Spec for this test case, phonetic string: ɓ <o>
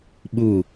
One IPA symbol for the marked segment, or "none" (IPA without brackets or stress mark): u